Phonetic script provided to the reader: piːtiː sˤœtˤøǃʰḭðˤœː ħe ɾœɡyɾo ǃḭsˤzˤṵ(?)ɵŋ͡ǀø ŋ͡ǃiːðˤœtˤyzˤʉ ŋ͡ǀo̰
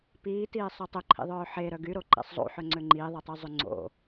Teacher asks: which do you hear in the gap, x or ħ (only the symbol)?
ħ